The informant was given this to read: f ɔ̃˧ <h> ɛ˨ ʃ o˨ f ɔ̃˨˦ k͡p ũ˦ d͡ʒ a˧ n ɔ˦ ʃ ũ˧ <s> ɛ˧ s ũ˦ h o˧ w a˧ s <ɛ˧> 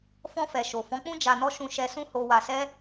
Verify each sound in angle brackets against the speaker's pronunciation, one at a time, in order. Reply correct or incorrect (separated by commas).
incorrect, incorrect, incorrect